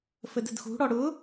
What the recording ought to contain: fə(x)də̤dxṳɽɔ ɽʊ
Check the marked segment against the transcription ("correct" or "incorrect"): incorrect